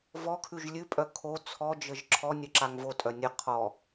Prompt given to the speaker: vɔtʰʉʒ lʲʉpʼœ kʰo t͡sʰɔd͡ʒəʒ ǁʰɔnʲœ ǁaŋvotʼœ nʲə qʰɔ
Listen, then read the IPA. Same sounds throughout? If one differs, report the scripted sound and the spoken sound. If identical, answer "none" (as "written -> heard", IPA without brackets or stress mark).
tʰ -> kʰ